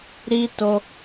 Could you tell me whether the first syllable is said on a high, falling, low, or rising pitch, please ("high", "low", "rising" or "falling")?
high